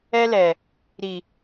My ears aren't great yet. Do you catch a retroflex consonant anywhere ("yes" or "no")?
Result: no